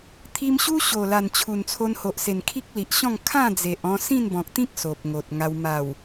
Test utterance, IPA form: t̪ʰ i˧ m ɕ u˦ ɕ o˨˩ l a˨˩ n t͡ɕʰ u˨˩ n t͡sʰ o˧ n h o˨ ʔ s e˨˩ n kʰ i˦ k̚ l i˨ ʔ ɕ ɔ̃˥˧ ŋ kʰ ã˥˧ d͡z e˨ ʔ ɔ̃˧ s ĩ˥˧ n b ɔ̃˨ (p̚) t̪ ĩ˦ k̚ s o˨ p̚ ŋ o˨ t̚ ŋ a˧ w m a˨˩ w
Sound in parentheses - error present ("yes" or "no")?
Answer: yes